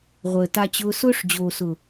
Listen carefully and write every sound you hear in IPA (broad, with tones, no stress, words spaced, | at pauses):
ʁʷəː˨ta˦t͡ɕʊː˦ sʊː˦ʂ d͡ʑoː˨sʊ˨